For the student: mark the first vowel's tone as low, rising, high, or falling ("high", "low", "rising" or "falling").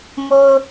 low